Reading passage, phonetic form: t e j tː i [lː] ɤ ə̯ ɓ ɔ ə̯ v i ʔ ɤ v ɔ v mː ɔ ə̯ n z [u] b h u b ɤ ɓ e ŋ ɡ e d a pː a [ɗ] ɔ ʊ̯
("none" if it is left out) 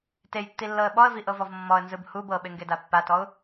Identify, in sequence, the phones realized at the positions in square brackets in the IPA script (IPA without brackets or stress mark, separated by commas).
lː, ɯ, t